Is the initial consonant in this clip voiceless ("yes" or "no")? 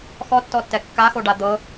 yes